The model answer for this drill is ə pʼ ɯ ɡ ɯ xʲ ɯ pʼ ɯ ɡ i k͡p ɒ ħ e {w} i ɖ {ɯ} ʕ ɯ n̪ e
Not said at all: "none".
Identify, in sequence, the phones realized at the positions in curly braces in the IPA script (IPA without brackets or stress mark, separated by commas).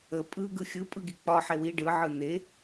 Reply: w, ɯ